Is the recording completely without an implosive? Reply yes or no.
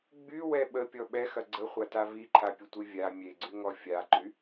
no